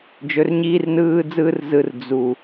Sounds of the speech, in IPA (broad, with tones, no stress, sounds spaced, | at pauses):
d͡ʒ ɵ˨ r ɲ iː˦ r n ɯː˦ d͡z ɯː˦ r z ɯ˨ r d͡z u˨